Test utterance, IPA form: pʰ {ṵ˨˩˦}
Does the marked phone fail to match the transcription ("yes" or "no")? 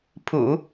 no